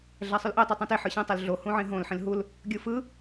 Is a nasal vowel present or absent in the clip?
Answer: present